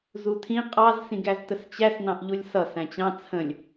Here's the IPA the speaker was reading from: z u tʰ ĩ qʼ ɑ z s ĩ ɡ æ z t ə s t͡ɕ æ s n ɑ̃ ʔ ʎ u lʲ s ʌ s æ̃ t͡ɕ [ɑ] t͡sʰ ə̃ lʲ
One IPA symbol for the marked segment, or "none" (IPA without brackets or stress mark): ɑ̃